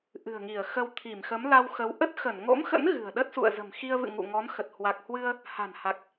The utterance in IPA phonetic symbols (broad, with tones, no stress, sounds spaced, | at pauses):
ʔ ɨ̤˨˩ ə̯ ŋ i˧˩ ə̯ x ə˧ w t̪ʰ i˧˩ m x ə˨˦ m l a˧ w x ə˨˦ w ʔ ə˦˥ t̚ x ə˧˩ n ŋ o̰˧˥ m x ə̰˧˥ n ɣ ɨ̤˨˩ ə̯ ɗ ə˦˥ t̚ s ṵ˧˨ ə̯ z ə̤˨˩ m x i˧ ə̯ v ɨ̰˧˨ ŋ ṵ˧˨ ŋ ɔ˨˦ n x ə˨˩ t̚ h w a˨˩ k̚ h w ɨ˧ ə̯ | h a̤˨˩ n h a˨˩ k̚